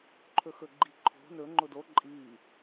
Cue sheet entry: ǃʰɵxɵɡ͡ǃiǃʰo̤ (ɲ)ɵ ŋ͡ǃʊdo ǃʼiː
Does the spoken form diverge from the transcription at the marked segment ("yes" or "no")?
yes